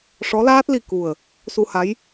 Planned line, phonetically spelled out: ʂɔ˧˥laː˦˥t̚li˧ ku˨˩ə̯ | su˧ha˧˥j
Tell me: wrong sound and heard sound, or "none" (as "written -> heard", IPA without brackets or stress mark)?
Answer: none